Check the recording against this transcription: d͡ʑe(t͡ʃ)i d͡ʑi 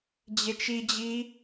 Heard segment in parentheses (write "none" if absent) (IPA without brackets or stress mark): t͡ʃ